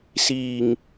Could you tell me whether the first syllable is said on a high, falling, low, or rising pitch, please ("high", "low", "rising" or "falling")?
low